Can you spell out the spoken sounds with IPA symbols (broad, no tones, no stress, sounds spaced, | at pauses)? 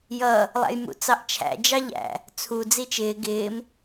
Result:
j ʌ | lˠ æ̰ j m ṵ t͡s ɑ ʔ t͡ʃʰ æ̰ d͡ʒ ɑ ʎ æ̰ | t͡sʰ u d͡z i t͡ʃ ɪː ɡ ɪː m